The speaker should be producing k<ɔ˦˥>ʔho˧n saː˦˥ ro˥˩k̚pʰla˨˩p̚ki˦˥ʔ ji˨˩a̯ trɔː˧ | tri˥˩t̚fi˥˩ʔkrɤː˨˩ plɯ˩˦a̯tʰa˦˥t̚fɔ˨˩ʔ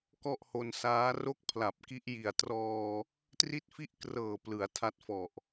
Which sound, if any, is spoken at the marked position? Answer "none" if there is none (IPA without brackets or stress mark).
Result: ɔ˥˩